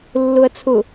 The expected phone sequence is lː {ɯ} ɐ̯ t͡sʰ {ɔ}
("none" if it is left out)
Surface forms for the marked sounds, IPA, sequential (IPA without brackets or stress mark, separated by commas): ʊ, ʊ